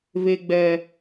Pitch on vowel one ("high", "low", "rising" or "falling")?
high